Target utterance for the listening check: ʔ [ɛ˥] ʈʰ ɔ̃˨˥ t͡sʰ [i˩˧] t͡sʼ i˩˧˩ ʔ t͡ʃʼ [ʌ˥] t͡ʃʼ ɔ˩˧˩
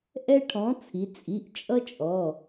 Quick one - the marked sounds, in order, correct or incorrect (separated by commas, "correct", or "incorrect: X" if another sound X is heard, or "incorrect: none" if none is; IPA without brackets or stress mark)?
correct, correct, correct